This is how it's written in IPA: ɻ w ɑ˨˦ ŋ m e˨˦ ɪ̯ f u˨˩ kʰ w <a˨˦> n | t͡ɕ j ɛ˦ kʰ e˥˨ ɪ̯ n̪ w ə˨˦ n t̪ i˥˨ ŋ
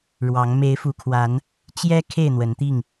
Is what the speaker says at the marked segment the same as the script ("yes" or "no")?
yes